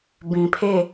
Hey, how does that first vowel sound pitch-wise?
low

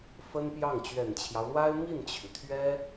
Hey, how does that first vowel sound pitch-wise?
high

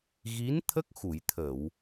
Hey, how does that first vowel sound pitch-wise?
rising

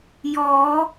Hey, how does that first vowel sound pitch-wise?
rising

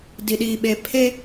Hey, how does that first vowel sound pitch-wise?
low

